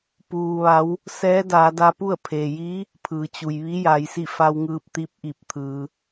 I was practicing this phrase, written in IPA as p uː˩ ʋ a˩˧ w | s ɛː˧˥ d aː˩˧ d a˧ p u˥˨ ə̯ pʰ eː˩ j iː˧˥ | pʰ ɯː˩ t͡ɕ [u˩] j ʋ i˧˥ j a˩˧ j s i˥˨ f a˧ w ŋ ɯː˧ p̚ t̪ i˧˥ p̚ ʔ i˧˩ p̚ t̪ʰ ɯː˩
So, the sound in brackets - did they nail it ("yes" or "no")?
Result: yes